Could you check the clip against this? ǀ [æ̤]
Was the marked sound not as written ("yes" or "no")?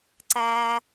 yes